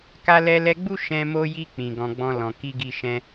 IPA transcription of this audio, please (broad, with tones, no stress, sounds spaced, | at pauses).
k a˧ l ɛ˧ l ɛ˧ ɡ͡b u˦ ʃ ɛ̃˧ m o˧ j i˧ k͡p ĩ˨ ɡ ɔ̃˨ ɡ͡b ɔ̃˧ l ɔ̃˨ k i˧ ɡ i˧ ʃ ɛ̃˧